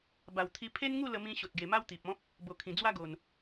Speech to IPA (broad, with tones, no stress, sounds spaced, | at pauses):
b a˨˩ w t̪ʰ i˧ pʰ e˦ n ŋ u˥˧ l ə˧ m ĩ˧ ɕ o˨ t̚ ɡ e˨˩ m a˦ w t̪ i˨ p̚ ɔ̃˦ p̚ | b o˨˩ kʰ ĩ˨˩ d͡z w a˦ ɡ o˨˩ n